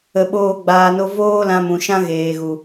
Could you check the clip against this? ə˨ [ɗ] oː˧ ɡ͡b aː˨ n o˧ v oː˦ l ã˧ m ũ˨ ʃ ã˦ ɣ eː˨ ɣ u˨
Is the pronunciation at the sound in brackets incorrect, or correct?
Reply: incorrect: ɓ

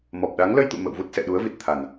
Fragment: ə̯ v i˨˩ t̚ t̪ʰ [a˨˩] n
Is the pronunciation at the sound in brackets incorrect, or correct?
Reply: correct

